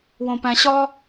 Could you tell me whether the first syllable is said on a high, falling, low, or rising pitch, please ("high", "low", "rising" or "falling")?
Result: high